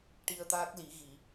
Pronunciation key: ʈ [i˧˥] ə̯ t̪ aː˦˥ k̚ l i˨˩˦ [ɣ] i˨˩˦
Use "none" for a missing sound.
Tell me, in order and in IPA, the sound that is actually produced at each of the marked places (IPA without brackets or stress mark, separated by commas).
i˧, ɣ